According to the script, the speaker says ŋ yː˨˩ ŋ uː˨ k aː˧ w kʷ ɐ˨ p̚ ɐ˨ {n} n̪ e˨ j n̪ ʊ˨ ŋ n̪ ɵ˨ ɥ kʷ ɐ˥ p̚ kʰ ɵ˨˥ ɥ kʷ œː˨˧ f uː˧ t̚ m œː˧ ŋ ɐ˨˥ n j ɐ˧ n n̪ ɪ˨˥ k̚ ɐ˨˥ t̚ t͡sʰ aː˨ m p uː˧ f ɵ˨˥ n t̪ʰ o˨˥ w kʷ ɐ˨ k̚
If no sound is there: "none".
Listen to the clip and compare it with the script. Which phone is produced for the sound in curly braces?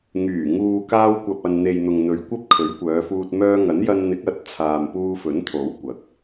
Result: n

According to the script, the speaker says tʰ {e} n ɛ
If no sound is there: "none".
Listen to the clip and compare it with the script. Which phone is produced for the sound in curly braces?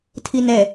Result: i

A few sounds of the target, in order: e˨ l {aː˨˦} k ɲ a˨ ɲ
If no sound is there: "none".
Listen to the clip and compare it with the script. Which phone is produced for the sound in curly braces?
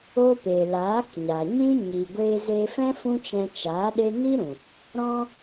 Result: aː˨˦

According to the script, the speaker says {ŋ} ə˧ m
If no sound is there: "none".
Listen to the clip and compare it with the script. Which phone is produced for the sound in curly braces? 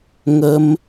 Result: ŋ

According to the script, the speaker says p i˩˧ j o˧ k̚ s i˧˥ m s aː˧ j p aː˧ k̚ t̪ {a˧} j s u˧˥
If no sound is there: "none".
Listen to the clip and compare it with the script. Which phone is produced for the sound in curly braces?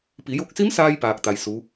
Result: a˧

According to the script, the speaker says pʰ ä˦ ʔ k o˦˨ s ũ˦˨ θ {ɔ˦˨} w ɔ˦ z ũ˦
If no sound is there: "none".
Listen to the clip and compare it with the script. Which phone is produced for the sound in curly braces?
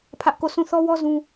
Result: ɔ˦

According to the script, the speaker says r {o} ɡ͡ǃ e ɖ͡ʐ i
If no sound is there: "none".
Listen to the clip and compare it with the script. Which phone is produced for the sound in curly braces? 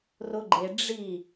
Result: o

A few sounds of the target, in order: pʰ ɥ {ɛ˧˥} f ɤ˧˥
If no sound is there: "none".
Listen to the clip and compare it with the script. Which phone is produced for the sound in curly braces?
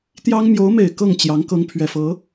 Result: ɛ˨˩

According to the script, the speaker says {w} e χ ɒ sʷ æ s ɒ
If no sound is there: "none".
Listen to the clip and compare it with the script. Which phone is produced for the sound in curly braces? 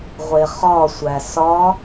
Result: ʁʷ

